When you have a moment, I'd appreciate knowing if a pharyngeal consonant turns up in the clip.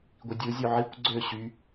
yes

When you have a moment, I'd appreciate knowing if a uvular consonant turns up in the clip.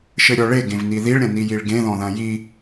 no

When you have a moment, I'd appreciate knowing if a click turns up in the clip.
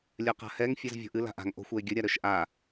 no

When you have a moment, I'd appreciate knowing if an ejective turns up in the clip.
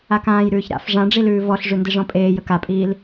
yes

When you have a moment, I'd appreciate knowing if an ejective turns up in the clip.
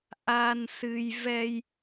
no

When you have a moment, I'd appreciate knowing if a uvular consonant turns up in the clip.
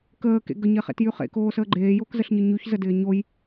yes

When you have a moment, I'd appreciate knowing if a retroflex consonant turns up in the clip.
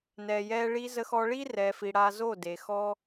yes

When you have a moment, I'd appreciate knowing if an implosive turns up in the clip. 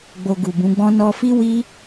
no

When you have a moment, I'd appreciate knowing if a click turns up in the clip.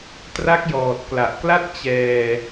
no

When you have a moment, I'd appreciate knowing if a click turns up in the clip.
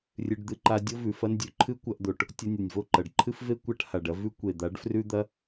yes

